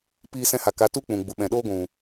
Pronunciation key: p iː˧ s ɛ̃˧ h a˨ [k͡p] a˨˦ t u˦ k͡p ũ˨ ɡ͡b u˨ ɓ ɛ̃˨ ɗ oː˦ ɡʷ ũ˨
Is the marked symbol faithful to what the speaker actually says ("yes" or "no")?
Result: no